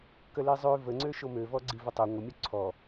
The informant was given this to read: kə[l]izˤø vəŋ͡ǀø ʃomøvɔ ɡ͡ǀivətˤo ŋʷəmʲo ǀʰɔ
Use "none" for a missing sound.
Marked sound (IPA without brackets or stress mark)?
l